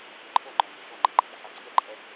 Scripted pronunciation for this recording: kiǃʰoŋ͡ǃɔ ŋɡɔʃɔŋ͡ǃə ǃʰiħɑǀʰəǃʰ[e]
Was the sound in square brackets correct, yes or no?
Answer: no